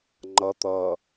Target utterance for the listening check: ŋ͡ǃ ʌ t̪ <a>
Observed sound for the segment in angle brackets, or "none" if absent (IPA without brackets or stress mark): ʌ